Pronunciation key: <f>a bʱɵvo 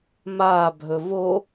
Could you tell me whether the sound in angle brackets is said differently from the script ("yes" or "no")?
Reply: yes